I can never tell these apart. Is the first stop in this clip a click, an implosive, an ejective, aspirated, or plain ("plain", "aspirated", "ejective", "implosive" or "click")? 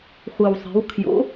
aspirated